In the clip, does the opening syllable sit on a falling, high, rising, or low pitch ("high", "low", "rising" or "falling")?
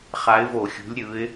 rising